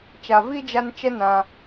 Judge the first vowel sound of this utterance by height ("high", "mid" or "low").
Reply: low